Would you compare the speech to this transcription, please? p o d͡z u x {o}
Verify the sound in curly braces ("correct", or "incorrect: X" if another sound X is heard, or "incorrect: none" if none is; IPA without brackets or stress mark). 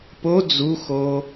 correct